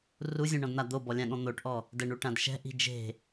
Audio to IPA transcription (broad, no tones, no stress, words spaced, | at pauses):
ruzʲũɳɔ̃dn̪a d̪obɔlʲãɠɔ̃ n̪oʈʔɔ | dɛɳuʈãd ʃɛ̤ʔi̤ d͡ʒe̤